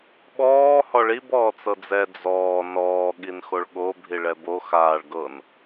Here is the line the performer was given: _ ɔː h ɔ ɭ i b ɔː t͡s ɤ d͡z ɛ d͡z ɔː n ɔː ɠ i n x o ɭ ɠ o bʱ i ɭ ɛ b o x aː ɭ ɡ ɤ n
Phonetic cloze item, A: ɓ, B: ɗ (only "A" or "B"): A